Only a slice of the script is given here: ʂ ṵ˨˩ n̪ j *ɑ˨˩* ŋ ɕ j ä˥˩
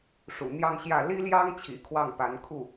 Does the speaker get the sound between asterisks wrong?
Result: yes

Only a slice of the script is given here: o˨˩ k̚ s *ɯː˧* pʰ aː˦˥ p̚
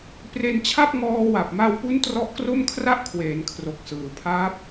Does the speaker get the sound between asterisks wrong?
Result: yes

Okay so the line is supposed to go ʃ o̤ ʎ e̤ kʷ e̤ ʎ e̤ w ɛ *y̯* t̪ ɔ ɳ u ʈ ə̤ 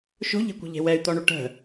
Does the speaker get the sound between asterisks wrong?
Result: no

